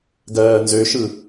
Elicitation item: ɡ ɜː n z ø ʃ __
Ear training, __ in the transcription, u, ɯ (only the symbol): ɯ